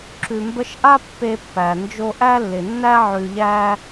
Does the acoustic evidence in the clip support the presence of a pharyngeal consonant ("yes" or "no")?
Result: yes